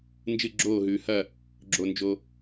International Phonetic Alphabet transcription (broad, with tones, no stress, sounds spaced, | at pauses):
n d͡ʒ ɨ˧˩ ɡ͡ǁ oː˧˩ ɦ ʉː˩ h ɐ˧˩ | ɡ͡ǁ o˩ n d͡ʒ o˩